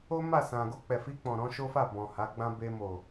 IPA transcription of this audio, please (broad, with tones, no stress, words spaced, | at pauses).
o˦ma˦˨sã˨ ɡo˧k͡pɛ˨fi˧k͡pɔ̃˨ ɾɔ̃˨˦ʃo˦fa˦˨ bɔ̃˨ ha˨˦ɡ͡bã˦ be˧mo˨